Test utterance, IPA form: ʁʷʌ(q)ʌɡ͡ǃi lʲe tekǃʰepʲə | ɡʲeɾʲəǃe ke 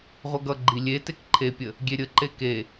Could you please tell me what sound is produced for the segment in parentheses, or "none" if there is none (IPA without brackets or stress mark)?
ɡ